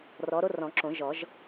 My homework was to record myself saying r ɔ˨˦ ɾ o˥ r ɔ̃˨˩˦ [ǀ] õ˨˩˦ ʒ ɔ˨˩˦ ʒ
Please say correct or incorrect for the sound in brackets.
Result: incorrect